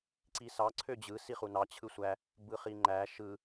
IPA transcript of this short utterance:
ǀ i s ɑ ǀʰ ø d͡ʑ ɯ s i χ u n ɑ t͡ɕʰ ɯ sʷ æ | b ɯ χ i ŋ͡ǃ æ ʃ ɯ

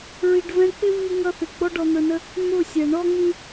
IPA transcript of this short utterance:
ɹ i˨ ɖ v ɛ̃˧ k͡p ɪ˦ v i˧ ŋ ʌ˧ θ ɪ˨ ɡ͡b ɔ˦ ɖ ɔ˧ n̪ ə˞˧ n ə˦ | n̪ ʊ˦˨ sʲ ɛ˨ ɳ ɔ˦ ŋ ĩ˦

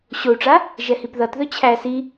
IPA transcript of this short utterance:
ɕ o u̯ ʈ͡ʂ a | ʒ ɛ h i p ð ʌ t ð ɵ t͡ɕʰ æ s i

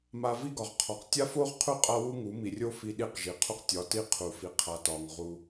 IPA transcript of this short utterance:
m a˧ v i˦ ɡ ɒ˨ ʁ qʰ ɒ˨ q tʲ a˦ f o˦ ʁ qʰ u˦˨ qʼ a˦ w u˦ ŋ u˨˦ m i˨ rʲ o˦ f i˦ ɗ i˦ q ʒ i˨ qʰ u˦ q tʲ ɒ˨˦ t i˦ qʰ u˨ f i˨ qʰ a˨ t ɒ˨ ŋ ʁ u˧

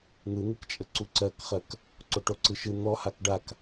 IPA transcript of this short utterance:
n̪ ɯ n̪ ɯ k t͡ʃʼ ə ǀ u ǀ ɜ k χ ɜ k | ǀ o ʈ o ǀ ɯ ʃ ɯ n̪ ɔ h a k ɖ a k

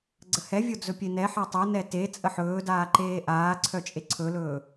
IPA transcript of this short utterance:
ɡ͡ǀ ə h ɛ vʲ o d͡z ɵ pʲ e n ɛ ħ ɛ tˤ ə n ɛ t e t͡sʼ ə ħ ɵː d aː ǃ eː ʔ aː ǀʰ œ t͡ʃʼ e ǀʰ ɵ l ɵː

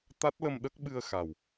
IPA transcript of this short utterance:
t̪ a˦˥ t̚ l ə˧ m ɗ ə˦˥ k̚ ɓ ɨ˧ ə̯ x a˨˩ w

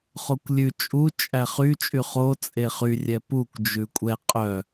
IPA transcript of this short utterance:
χ o kʷ lʲ ʉ t͡ʃʼ u t͡ʃʼ æ χ y t͡ʃʼ y χ o t͡sʼ e χ y rʲ ɛ p u kʷ d͡ʒ ʉ kʷʼ ɛ qʼ œ

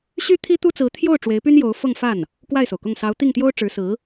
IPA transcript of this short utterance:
ɕ y˥ t̪ʰ i˥ t̪ u˥ t͡s ɹ̩˧˥ t̪ʰ j o˥˩ ʊ̯ ʈ͡ʂ w e˧˥ ɪ̯ p y˥ n j o˧˥ ʊ̯ f ɤ˥˧ ŋ f a˥˩ n | k w a˥˩ ɪ̯ s o˩ ʊ̯ k ʊ˥˩ ŋ s ɑ˧˥ ʊ̯ t̪ i˥˩ ŋ t̪ j o˥ ʊ̯ ʈ͡ʂ ɻ̩˧˥ s ɹ̩˧˥

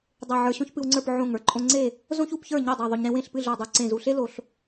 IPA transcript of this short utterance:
dˤ e˧˩ ʕ ə˞˧ ɕ õ˥ ç p ɨ˧ w ŋ͡ǀ ə˞˥˨ p ʕ õ˧˩ ŋ ə˞˥ ǃʼ õ˧ ŋ͡ǀ e˥˨ | z õ˥ ç u˥˨ p ç ə˞˥˨ ɲ e˥˨ dˤ e˧˩ ðˤ o˧ ɲ ɾ ẽ˥ w ẽ˥˨ ɬ p ɨ˥˨ ɮ ə˞˧˩ dˤ u˧˩ ǀ ẽ˧˩ z u˧˩ ɬ e˥ l o˧ ɬ

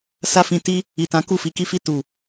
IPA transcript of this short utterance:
s a˦ f ĩ˧ t i˦ | i˨ t ã˨˦ k u˦˨ f i˨˦ k i˦ f i˦˨ t u˨

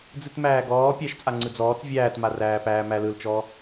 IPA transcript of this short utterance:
d͡z ɨ t m æː ɡ ɔː pʲ æ ʃ t͡sʼ a ŋ͡ǀ ɯ d͡z ɔː t͡s vʲ æː t m a r æː p æː m æ l ɯ l t͡ʃ ɔ

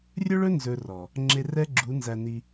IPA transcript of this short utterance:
rʲ ɵ˦ ɭ ɵ˦ n z ɵ˧ r ɔ˨ | ŋ͡ǁ e˧ r ɛ˦ ɡ͡ǁ u˨˦ n z æ˧ n i˧

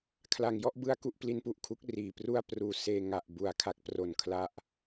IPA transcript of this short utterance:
kʰ l a˨˩ ŋ j ɔ˥˩ ʔ b ɯ˦˥ a̯ k u˦˥ ʔ p l i˦˥ n p u˨˩ ʔ kʰ u˦˥ k̚ r iː˨˩ p r u˥˩ a̯ p r uː˧ s eː˧ ŋ a˨˩ ʔ b u˨˩ a̯ kʰ a˦˥ k̚ p r o˨˩ n kʰ l a˦˥ ʔ

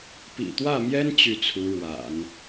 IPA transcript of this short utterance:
p ḭ˨˩ t̪ w ä˥˩ m j ɛ˥ n t͡ɕ y˥˩ t͡sʰ u˧˥ ɻ w a̰˨˩˦ n

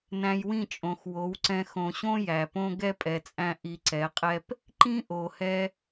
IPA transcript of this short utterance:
n æ̃˧ j w ĩ˦˨ t͡ʃʼ õ˨ x w o˨˦ w ǀ ɛ̃˧ x õ˨ ɕ õ˦ j æ˨ p õ˦ ɡ ɛ˦ pʼ ɛ˨ t͡sʼ æ̃˧ ʔ i˧ ǀ ɛ˨˦ qʼ ɛ˦ p | ǃ ĩ˦ ʔ o˨ h ɛ˧

